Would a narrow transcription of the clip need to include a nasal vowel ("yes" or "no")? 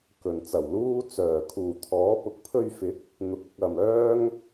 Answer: no